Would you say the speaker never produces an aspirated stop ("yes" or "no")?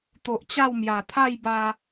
no